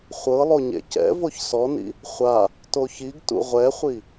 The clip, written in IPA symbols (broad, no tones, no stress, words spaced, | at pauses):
χʷɤ lˠoɲḛcɛ̰ voçsɔnḭ | χʷa | toçiɡ tṵʁʷɛχʷi